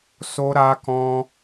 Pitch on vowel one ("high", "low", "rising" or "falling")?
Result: high